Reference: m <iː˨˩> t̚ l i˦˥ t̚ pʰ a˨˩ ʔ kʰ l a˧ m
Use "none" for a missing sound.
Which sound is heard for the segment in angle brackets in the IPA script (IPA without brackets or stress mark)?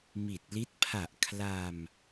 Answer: i˨˩